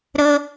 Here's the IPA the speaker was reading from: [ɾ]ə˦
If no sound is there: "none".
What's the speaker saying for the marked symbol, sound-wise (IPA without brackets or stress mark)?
ɾ